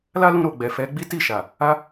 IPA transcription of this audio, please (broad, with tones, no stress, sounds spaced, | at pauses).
l a˦ l ũ˧ ɾ o˨ ɡ͡b ɛ˨ f ɛ˨˦ ɡ͡b i˦ t i˦˨ ʃ a˨ | a˧